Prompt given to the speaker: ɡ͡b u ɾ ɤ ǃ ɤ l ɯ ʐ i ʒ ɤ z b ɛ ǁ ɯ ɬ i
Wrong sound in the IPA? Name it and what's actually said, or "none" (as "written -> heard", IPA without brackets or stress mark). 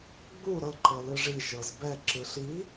none